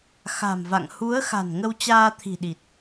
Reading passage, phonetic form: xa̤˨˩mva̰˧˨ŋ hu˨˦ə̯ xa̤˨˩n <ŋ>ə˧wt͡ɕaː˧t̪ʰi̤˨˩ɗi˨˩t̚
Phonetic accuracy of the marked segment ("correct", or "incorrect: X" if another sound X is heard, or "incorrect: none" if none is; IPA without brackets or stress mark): correct